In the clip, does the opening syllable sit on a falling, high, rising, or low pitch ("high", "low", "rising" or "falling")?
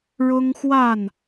high